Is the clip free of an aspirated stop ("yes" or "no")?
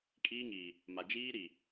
yes